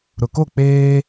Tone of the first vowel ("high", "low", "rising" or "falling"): low